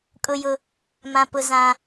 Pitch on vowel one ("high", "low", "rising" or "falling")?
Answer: high